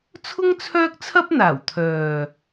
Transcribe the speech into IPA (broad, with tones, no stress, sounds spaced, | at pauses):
t͡sʰ ʊ˥ ŋ t͡sʰ œː˥ k̚ t͡sʰ ɐ˥ p̚ n̪ aː˨˩ w t̪ʰ œː˨